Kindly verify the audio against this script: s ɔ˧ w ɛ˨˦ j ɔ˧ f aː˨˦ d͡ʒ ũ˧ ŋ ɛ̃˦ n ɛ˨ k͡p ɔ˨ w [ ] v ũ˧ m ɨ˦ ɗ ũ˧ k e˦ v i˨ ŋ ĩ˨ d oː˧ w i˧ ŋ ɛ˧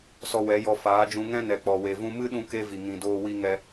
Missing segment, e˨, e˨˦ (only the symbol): e˨